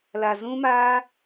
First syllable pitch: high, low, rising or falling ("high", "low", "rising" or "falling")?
low